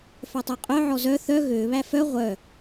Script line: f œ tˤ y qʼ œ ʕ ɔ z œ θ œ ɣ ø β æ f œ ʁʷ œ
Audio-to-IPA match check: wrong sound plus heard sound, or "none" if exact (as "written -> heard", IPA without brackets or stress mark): none